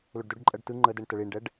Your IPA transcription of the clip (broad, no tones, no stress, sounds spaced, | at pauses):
l ɵ ɖ d ɵ ɖ ǃʼ ɜ ɖ t ɯ ŋ͡ǃ ə d ɛ ɳ t ə ɭ i ɳ ɖ ɛ ɖ